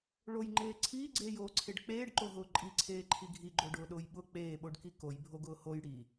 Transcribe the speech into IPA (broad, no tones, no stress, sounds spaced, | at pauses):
ɭ o j ŋ͡ǃ eː ǀʰ iː ɡ͡ǀ eː j oː ǀʰ e ɖ k͡p eː ɖ ǃ o ɦ ʊː ǃʼ i ǀʰ eː ǃʰ i ɡʱ i ɡ͡ǃ o ɖ ʊː ɗ ʊː j ɓ ʊ k͡p eː ɓ o ɖ k i k o j bʱ o ɡ ʊː h o j ɽ i